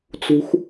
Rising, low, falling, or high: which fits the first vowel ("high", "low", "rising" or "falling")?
low